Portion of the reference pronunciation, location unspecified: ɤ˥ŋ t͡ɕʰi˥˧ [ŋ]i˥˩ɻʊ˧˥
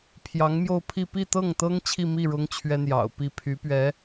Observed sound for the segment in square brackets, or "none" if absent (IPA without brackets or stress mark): m